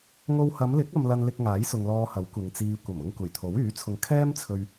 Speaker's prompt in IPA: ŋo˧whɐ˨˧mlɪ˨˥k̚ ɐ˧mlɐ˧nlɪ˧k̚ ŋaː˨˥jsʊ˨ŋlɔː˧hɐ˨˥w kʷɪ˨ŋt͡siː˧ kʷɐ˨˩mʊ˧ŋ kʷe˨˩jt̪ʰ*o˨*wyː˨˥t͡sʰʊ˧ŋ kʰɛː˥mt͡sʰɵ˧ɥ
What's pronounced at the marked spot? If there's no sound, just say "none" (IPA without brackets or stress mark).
o˨˥